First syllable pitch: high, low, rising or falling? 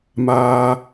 low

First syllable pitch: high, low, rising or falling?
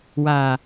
low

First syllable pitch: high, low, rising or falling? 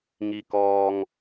low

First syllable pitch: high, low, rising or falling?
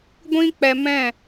high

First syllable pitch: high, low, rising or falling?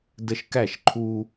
high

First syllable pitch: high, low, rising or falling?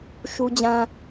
high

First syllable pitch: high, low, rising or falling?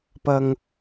low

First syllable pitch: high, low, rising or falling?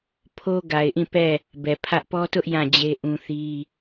high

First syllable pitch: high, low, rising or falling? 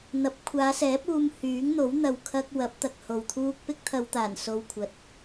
rising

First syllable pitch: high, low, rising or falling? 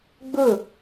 falling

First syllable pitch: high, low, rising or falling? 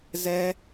high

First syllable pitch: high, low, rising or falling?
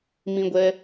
high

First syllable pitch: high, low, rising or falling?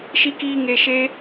high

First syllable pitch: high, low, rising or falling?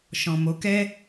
low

